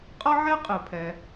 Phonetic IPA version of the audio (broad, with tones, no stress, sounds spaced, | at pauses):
qʼ ʌ˥ ʕ ɛ˥ qʼ ɨ˩ pʰ ɛ˩